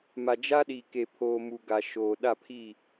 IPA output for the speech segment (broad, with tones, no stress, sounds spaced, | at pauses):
m a˨ d͡ʒ a˦ ɗ iː˨ k e˨ pʰ oː˨ m u˨ ɡ a˨ ʃ oː˨ ɗ a˦˨ pʰ i˦˨